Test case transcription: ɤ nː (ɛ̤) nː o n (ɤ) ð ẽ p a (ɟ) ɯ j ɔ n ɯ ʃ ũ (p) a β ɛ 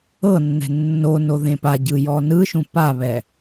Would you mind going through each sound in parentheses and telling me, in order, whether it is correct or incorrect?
correct, incorrect, correct, correct

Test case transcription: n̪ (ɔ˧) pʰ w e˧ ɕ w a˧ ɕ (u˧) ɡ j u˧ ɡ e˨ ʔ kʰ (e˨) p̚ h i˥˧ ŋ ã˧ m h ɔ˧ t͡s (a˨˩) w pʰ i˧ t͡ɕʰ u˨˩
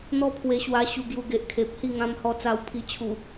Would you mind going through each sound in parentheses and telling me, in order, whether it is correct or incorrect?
incorrect, correct, correct, incorrect

